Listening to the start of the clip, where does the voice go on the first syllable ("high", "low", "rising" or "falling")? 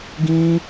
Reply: high